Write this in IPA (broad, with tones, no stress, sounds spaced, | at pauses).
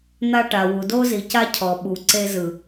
n̪ a˦ ʈ a˨ w u˨ d o˦ z i˨ c a˦ cʰ ɔ˨ ɓ u˨ ǀ e˦ z ɯ˨